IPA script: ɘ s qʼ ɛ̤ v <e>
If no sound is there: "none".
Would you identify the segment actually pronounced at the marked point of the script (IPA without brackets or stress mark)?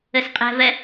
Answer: ɛ